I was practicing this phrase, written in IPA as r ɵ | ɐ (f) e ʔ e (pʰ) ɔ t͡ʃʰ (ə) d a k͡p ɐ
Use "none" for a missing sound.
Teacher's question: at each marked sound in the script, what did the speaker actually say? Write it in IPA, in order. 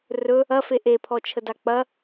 f, pʰ, ə

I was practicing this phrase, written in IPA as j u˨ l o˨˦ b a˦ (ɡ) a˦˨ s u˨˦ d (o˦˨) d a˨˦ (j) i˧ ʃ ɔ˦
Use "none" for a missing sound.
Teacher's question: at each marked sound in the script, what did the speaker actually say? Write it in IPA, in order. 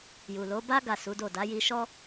ɡ, o˦˨, j

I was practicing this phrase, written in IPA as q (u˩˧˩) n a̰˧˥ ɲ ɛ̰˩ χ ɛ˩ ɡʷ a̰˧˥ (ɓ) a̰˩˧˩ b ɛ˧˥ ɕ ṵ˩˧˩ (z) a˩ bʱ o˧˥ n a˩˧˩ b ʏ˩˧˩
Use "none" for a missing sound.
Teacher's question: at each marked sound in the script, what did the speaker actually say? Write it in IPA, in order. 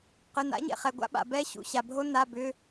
ʏ˩˧˩, ɓ, ɕ

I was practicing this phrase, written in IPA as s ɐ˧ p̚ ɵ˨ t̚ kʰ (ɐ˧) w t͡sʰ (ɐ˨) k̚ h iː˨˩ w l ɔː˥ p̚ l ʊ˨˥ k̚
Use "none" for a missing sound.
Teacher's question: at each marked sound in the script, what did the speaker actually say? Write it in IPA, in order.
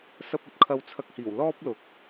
ɐ˧, ɐ˧

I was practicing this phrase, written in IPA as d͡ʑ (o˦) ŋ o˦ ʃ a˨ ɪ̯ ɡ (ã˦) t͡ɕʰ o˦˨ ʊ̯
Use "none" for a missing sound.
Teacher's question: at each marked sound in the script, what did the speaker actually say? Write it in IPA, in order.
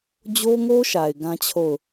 o˦, ã˦

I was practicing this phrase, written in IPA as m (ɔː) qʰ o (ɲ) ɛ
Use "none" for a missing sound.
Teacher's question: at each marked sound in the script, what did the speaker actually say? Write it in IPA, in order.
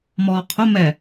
ɔː, m

